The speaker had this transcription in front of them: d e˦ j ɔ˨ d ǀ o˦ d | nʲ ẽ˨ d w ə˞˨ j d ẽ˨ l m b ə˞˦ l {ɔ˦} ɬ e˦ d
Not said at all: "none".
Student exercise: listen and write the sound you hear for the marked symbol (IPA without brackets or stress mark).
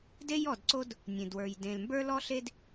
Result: ɔ˦